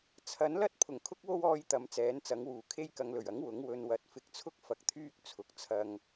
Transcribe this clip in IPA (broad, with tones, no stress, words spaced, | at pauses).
t͡sʰɐ˨˥nlɐ˥t̚ pʰʊ˨˩ŋkʰʊ˥k̚wo˥wɔː˧j t̪ɐ˨˧mt͡sɛː˨˥nt͡sɐ˨˥ŋwuː˨˩ kʰe˧jkɐ˨ŋlɵ˨˩ɥɐ˨˥ŋ wʊ˨˥ŋ wɵ˨nwɐ˨˥t̚ fɪ˨˥k̚t͡sʰʊ˥k̚ fɐ˧k̚t̪ʰyː˥k̚ t͡sʰʊ˨k̚t͡sʰɐ˧ŋ